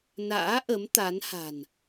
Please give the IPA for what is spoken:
na̰ː˧˥ʔə˨˦m t̪a˨˦n ha̤˨˩n

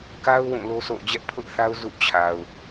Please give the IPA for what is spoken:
ka˦ʊ̯ wũ˦˨lo˦sʰo̰˦˨ʊ̯ d͡ʑɛ˦ʔpʰʊ˦ʔθa˦ʊ̯ zṵ˦˨t͡ɕʰa˨ʊ̯

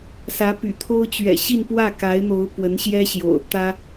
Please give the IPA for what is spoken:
sä˧˥py̰˨˩t̪ʰo˥ʊ̯ t͡ɕɥɛ̰˨˩ɕi˥˧npwä˥˩ ka˧˥ɪ̯n̪o˧˥ʊ̯ pwə˧˥nɕjɛ˥ɕjo̰˨˩ʊ̯ t̪ä˥

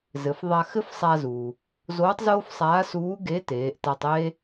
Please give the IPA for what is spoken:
zɘ˩˧fðˤa˧ xɘ˥fsˤa˧zuː˩ | zoː˧˥tˤzoː˥fsˤaː˧˥suː˧˥ ɡe˧˥ teː˩˧ʔta˧tˤeː˥

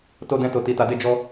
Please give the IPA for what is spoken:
to˦dɛ̃˦to˧ti˧ ta˧de˦ d͡ʒɔ˦

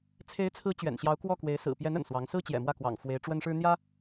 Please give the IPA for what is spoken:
t͡sʰe˧˥ɪ̯t͡sʰɹ̩˧˥ t͡ɕɥɛ̰˨˩nɕjɑ˧˥ʊ̯kwɔ˥˩ kwe˧˥ɪ̯ sɹ̩˨˩pjɛ˧˥n ə̰˨˩nswɑ˧˥ŋ sɹ̩˥t͡ɕjɛ̰˨˩ mwä˥˩kwɑ̰˨˩ŋ fwe˧˥ɪ̯ʈ͡ʂwə˥nʂɻ̩˥ n̪jä˥

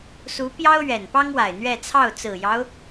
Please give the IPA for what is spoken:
su˧˥pjɑ˥ʊ̯ ɥɛ˨˩npɑ˥ŋwa˨˩ɪ̯ n̪ɥɛ˥˧ t͡sʰɑ˥˩ʊ̯t͡sɹ̩˨˩jɑ˦ʊ̯

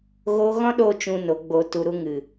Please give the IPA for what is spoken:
ɣo˦ ɣɔ̃˦ɗo˧ t͡ʃũ˦no˨˦ ɡ͡bo˧tu˧ɾu˦ŋɨ˨

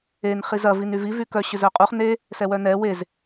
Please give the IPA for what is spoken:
en χizɐ vinyvi vykœ ɕʏzœqʼuχ ne | sɛwœnɛ wez

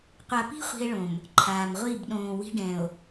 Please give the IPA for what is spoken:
qʷa˨pi̤˦ χʷi̤˦e̯ɭõ˨m | ǃʰaː˨m ʁʷi˦˨b ɗõː˨wi̤˦ɖɛ̃˨o̯

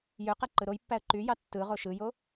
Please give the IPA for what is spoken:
jøqæ ǃɯɾojpːæə̯ ǃyjɑ tːɯʁo ʃɯjo

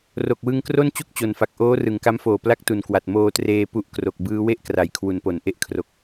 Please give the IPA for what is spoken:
ro˨˩k̚wɯ˧ŋkro˥˩n t͡ɕu˥˩k̚t͡ɕo˨˩nfa˨˩k̚ ʔoː˦˥ rɯ˨˩ŋka˦˥mfoː˨˩ pla˥˩k̚tu˨˩nkwa˨˩t̚ moː˧treː˧ pu˦˥ʔkro˨˩k̚ bɯː˦˥we˥˩ʔkra˩˦j kʰwu˩˦npo˩˦n ʔe˦˥ʔ kʰro˨˩k̚

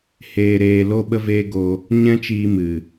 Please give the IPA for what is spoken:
heː˨ɾeː˨ lo˦ɓə˦veː˦ ɡo˧ | ɲɛ̃˦t͡ʃiː˧ mɨ˨

